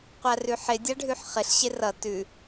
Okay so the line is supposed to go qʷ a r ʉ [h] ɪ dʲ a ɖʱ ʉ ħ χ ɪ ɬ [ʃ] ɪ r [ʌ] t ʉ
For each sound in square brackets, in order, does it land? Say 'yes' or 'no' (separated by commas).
no, no, yes